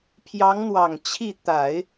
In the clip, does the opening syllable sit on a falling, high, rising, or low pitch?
rising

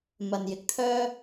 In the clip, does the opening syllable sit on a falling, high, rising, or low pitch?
low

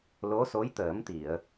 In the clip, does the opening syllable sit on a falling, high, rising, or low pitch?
rising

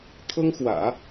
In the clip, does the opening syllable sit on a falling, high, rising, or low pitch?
high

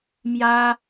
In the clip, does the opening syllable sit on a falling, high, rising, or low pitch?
high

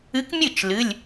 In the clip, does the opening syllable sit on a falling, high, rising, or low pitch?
rising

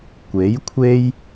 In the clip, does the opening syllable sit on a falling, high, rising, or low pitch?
rising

